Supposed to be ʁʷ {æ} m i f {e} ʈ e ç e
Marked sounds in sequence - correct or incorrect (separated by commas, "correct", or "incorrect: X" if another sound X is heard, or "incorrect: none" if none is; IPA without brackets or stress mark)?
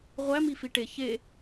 correct, incorrect: i